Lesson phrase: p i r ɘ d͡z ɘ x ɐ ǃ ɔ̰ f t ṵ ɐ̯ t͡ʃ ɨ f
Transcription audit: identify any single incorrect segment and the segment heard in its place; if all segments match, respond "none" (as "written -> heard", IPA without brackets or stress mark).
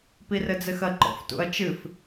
none